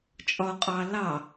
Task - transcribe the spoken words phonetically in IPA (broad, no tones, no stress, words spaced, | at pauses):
t͡ʃʼɒqʼɑ lɑ